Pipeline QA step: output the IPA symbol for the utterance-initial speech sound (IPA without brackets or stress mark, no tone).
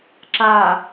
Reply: ǁ